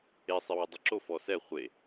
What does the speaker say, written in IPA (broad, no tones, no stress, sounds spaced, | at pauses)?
e sˤ ɪ w ɪ dˤ ɪ ǁ o f ɔ s ɛ χʷ e